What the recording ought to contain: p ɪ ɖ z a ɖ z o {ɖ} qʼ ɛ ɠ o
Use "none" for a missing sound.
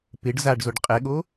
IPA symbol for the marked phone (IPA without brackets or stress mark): ɖ